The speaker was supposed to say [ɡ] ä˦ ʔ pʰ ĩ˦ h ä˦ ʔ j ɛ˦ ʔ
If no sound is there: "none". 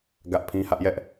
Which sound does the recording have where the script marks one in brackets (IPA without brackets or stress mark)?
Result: ɡ